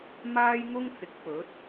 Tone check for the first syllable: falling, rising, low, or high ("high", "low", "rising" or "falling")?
high